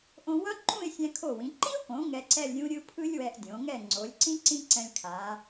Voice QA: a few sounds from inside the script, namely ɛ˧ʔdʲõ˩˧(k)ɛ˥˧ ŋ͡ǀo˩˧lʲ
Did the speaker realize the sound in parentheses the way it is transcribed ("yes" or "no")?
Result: no